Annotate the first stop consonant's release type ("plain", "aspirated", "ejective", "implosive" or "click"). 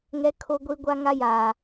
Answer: aspirated